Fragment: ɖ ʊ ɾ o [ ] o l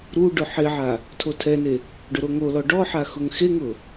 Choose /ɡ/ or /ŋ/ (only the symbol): ŋ